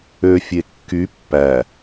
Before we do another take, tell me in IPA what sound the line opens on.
ø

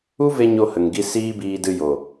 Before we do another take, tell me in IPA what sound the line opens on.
u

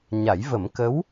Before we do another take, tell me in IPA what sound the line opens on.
ɲ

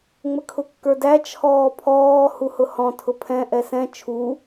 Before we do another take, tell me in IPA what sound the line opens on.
ŋ͡m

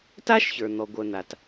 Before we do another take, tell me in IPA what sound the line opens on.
t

